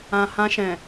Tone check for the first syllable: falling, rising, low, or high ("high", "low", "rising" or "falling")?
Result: low